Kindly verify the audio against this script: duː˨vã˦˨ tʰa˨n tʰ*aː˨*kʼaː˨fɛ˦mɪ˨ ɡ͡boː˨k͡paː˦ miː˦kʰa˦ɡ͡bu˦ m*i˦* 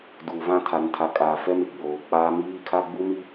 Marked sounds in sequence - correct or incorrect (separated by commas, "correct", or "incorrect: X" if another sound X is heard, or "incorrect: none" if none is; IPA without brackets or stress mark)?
incorrect: a˨, correct